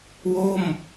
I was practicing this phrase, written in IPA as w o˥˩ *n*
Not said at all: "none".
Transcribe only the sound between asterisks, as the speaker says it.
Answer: m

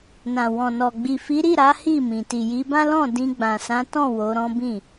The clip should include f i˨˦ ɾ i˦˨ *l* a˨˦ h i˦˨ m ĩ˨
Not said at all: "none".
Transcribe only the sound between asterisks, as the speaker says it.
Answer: ɾ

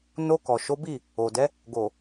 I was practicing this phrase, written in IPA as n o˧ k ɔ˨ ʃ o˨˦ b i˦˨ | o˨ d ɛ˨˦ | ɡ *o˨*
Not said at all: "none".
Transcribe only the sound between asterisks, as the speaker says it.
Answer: o˨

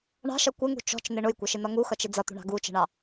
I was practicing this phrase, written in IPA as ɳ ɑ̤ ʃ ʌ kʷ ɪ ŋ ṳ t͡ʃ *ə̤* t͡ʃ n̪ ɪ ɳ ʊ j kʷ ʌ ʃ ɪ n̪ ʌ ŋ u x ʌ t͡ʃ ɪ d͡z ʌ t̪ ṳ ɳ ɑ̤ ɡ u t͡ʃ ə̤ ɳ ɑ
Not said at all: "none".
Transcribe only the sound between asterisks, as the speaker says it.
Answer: ɔ̤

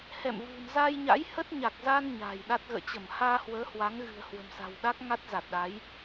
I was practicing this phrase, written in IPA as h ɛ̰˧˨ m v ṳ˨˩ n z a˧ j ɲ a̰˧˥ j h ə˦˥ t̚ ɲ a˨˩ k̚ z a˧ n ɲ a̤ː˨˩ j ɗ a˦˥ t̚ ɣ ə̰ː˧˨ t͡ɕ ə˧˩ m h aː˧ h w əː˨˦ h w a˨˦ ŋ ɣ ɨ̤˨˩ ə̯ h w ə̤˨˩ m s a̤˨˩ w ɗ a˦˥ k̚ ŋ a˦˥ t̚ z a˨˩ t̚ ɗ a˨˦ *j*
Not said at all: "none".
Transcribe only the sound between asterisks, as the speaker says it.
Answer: j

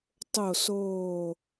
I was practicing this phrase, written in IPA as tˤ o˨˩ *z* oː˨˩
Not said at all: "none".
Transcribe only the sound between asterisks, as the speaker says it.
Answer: s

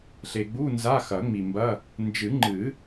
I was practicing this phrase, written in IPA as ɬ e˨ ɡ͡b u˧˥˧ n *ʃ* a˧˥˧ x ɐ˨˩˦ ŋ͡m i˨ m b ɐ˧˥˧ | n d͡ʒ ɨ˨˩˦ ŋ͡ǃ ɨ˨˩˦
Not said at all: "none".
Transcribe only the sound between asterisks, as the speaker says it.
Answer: z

